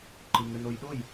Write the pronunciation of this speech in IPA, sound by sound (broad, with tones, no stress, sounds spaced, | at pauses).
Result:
ǃ ɨ˨ ŋ ɘ˨ n o˨ j ɗ o˦˨ j